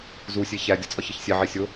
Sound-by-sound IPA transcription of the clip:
z u sʲ e ç æ dʲ ɒ t͡sʼ ɒ ç i ç sʲ e ʕ i sʲ o

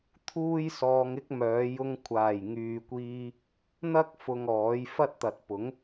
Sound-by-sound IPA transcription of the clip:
t̪ʰ uː˥ j s ɔː˧ ŋ ɪ˥ k̚ m œː˨˧ j ʊ˧ ŋ kʷʰ aː˨˩ j ŋ yː˨ kʷ iː˧ | n̪ ɐ˥ k̚ f ʊ˧ ŋ ɔː˨˥ j f ɐ˥ t̚ t̪ ɐ˨ t̚ p ʊ˨˥ ŋ

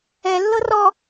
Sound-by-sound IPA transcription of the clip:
ɛ lː ɤ r ɔ

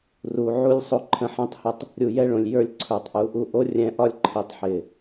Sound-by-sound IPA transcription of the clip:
r u˨ ʕ u˦ lʲ sˤ o˧ ǃʰ ə̃˧ ħ ɛ̃˦ tˤ h ə˧ tˤ | ɾʲ u˨ j ɛ˦ ɭ õ˨ lʲ j ə˞˦ lʲ ǀʰ ə˞˨ tˤ ʔ u˨˦ ʔ u˦˨ ʔ o˦ rʲ ɛ̃˧ ʔ ɒ˦ lʲ ǃʰ i˨ tˤ ħ ɪ˨

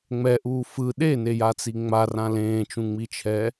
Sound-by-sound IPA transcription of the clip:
ŋ͡m ɛ ʔ uː f ɯ ɗ e n e j a t͡s i ŋ͡m a r ã l ẽː t͡ʃ ũ ŋ͡m i t͡ʃʰ ɛ

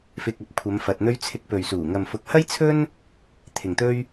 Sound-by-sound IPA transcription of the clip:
f ɪ˨ k̚ ɐ˨˥ p̚ kʷʰ ɐ˨˧ m f ɐ˨ t̚ n̪ ɵ˥ ɥ t͡sʰ ɪ˧ k̚ p ɵ˨ ɥ s uː˨˩ ŋ ɐ˨ m f ʊ˨˥ k̚ h ɐ˥ j t͡sʰ ɵ˥ n | t̪ʰ ɪ˨ ŋ t̪ ɵ˥ ɥ

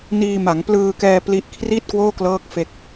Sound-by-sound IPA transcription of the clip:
n iː˧ m a˩˦ ŋ p l ɯː˧ k ɛː˧ p l i˥˩ ʔ kʰ r i˥˩ t̚ k w oː˥˩ k l ɤː˦˥ k̚ f e˦˥ k̚

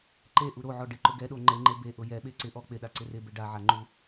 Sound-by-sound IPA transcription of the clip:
ǃ e ʔ u ɾ o ʕ ɔ ɖ ɪ ǃ ʊ ɡ ɛ ɗ o ŋ͡ǃ e ŋ͡ǃ e b e ʔ ʊ j ɛ ɓ e ǀ ɪ ʔ ɔ k͡p ɪ ɗ a ǀ ɪ r ɪ b e ɖ a ʕ a ŋ͡ǃ u

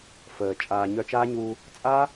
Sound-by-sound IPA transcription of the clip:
f əː˨ t͡ʃʼ aː˨ ɲ œ˧ t͡ʃ aː˦ ɲ u˧ | t͡sʼ a˦

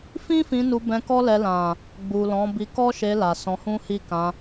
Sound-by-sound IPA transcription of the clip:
f ĩ˦ f ĩ˧ n u˧ b ɛ̃˧ k ɔ˦ l ɛ˧ l ã˨ | ɡ͡b u˨ l ɔ̃˨˦ b i˧ k ɔ˦ ʃ e˧ l a˨ s ɔ̃˧ h ũ˦ h i˦˨ k ã˧

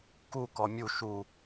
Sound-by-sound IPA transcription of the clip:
k u k ɔ mʲ u ʃ u

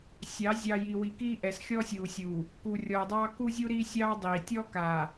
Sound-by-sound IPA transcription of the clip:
sʲ ɑ˨˦ zʲ ɑ˨ j i˨ w i˨ k iː˦ ʔ ɛ˨ s xʲ ɔː˦ sʲ uː˨ sʲ uː˨ | k u˨ rʲ ɔː˨ dˤ ɑː˦ k u˦ zʲ u˦ ɾ iː˦ sʲ ɑː˦ dˤ iː˨ tʲ ɔ˦ k aː˨

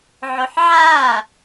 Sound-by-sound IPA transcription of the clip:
ʕ o ħ ʕ aː

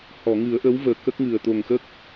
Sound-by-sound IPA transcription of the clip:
h ɔ˨˩˨ ŋ ɨ˨˩˦ ə̯ ʔ ə˧˥ w v əː˨˩ k ə˦˥ k̚ ŋ ɨ˨˩ ə̯ t̪ o˨˩ ŋ x ə˦˥ k̚

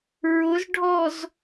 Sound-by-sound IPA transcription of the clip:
ɹ ʊ z ɖʱ ɔ z

